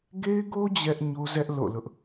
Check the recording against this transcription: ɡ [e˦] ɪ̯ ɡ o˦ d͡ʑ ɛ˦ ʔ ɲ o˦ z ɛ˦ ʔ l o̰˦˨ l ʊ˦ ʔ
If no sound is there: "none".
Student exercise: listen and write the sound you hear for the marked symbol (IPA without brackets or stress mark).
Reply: e˦